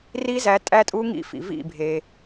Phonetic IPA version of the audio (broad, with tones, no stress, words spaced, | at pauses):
ri˦˥zæ˨˦ tʼæ˦˥tʼu˦˥ŋḭ˦˥fḭ˩ vḭ˧˩bʱe˩